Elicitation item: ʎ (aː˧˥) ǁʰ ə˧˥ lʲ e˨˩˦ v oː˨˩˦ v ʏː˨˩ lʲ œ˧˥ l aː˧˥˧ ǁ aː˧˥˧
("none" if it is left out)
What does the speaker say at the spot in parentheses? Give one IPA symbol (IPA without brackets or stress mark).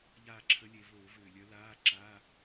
aː˥˩